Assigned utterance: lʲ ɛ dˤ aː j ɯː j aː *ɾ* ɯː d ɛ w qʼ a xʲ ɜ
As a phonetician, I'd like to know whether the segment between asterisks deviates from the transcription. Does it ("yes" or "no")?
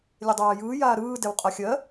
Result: no